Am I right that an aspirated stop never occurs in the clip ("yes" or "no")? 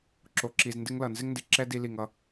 yes